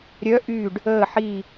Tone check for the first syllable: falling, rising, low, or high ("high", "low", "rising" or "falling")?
rising